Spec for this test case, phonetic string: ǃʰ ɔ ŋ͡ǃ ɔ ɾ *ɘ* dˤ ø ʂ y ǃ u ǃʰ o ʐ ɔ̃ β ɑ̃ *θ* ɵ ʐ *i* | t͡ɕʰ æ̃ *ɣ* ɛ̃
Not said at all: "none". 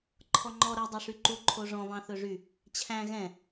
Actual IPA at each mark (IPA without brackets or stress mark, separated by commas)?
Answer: ɛ, θ, y, ɣ